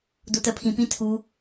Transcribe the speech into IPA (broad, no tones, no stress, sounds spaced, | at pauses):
d o t ɜ pʰ ĩ p ĩ tʰ u